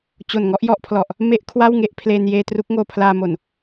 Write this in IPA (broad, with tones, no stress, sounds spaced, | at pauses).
t͡ɕ o˨˩ n ŋ ɔ˥˩ ʔ j ɔ˥˩ ʔ pʰ l ɔ˨˩ ʔ | m e˦˥ ʔ kʰ w a˥˩ w ŋ e˦˥ ʔ pʰ l eː˧ n j eː˧ t r u˦˥ k̚ ŋ oː˧ pʰ l aː˧ m o˨˩ n